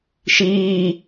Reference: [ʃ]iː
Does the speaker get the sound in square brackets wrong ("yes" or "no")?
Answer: no